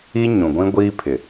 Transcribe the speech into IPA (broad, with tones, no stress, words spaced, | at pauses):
i˦ɲũ˨ɡʷĩ˦ ɡʷiː˦pʰɪ˨